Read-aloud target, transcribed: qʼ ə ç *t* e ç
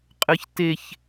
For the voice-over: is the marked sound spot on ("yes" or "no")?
yes